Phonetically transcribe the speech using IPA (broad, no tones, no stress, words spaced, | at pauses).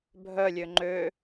bʱœlʲø ŋ͡ǃø